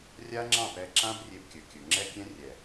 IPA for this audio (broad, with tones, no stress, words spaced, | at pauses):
rʲa˦ŋ͡ǁɑ̃˦˨pɛ˧ ǁã˦brʲe˧b kʲɵ˨kʲɵ˨ŋ͡ǁɛ˦kʲɛ̃˦ rʲɛ˨